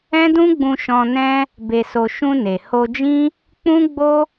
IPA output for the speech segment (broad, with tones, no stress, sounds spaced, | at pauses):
ɛ̃˦ d ũ˦ ɡ͡b ũ˧ ʃ ɔ̃˧ n ɛ̃˦ | b e˧ s o˧ ʃ ũ˧ n e˨ h o˧ d͡ʒ ĩ˦ | k͡p ũ˦ ɡ͡b o˦